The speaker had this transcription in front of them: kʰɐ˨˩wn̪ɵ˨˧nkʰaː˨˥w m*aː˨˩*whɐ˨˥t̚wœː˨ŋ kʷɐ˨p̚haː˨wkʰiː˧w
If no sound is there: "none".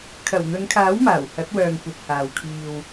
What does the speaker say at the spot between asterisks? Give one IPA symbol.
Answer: aː˨˩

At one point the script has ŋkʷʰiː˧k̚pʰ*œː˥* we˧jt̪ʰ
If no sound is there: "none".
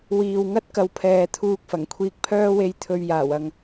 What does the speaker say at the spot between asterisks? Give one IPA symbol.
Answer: œː˥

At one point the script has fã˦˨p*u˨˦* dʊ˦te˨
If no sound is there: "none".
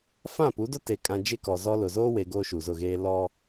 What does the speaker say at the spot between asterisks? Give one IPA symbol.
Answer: u˨˦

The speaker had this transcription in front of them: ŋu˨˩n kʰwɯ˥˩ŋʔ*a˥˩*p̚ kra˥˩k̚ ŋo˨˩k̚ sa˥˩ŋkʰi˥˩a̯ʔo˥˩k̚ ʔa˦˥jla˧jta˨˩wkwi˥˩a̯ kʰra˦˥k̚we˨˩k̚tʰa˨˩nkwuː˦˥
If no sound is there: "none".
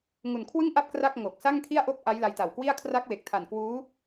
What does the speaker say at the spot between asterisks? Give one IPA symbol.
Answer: a˥˩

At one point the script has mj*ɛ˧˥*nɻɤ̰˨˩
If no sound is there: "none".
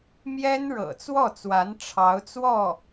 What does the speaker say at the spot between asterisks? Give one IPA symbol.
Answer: ɛ˥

